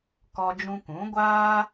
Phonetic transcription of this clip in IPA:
k ɔ˦ d͡ʒ ũ˦ k ũ˨˦ ɡʷ aː˦

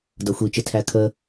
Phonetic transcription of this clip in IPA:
d ʌ xʷ i t͡ʃ ɪ tʰ æ kʰ əː

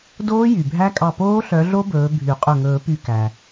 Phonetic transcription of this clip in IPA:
d oː˦˥ j y˩ bʱ æ˦˥ kʼ ɑ˧˩ p oː˦˥ ɬ œ˨˦ ɮ o˦˥ b ɵː˨˦ bʱ y˨˩˦ qʼ ɵ˧˩ ŋ ɵː˨˩˦ p y˧˩ k æ˩

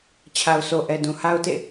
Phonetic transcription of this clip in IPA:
t͡ɕʰ a˨ ʊ̯ s o˨ ʔ ɛ˨ d ũ˨ h a˦ ʊ̯ t ḛ˦˨

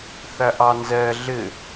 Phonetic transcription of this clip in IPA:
θ æ ʔ ɑ n z ɛ ɮ ɪ

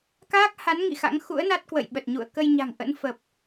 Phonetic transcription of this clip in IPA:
k aː˦˥ k̚ h a˨˦ n ŋ ḭ˧˨ x a̰˧˥ ŋ x ṵ˧˥ ə̯ n a˦˥ t̚ k w ə̰˧˨ j ɓ ə˨˩ t̚ ɲ ṵ˧˨ ə̯ k ə˧ j ɲ a̤˨˩ ŋ ʔ ə̰˧˥ n f ə˨˩ p̚

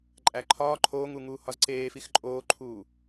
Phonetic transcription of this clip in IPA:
ǃʼ æ ǃʰ ɒː ǃʰ oː ŋ u ŋ uː h ɒ z ǀ eː f i x ǃʼ oː ǃʰ uː

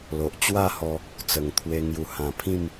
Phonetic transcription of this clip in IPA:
l o˨ ʔ t͡ɕ w a˥˧ h ɔ˧ | t͡s ə˨˩ ŋ t̪ʰ w e˧ ŋ j u˨˩ h ã˨˩ pʰ ĩ˥˧ m

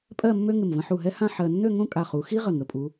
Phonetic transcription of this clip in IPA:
pʼ ɜ˥˧ mː ø˥ ŋ ɪ˧˩ m v ə̃˧ ħ u˧˩ ɦ ɛ˥ h ã˥˧ ħ ɜ˧ nː ø˥˧ ŋ õ˥˧ kʼ a˧˩ χ u˩˧ x i˥ ʁ ə˧˩ ŋ ə˩˧ pʼ u˩˧

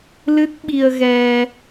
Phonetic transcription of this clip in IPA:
l ɨ˦˥ t̚ ɓ i˧ ə̯ ɣ ɛ˧

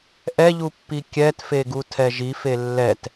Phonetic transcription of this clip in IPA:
ʔ ɛ ʎ u pː i kʲ ɛ t f e ɡ u tʰ ɛ ʒ i f e lː ɛ t

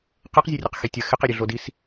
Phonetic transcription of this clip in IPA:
q e q zʲ ɛ rʲ ɛ q x e tʲ ɐ x ɪ q e ɾʲ ø ɮ o d i s

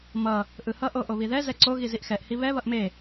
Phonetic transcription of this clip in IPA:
m ʌ | ʔ ɯ h ʌ ʔ o ʔ o β i ð ɛ z ɛ ǀ o ɣ i z i ʔ x ɛ ʔ h i β ɛ β ʌ ʔ m e

